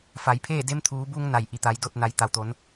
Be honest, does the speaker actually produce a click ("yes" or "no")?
no